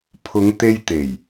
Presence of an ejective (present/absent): absent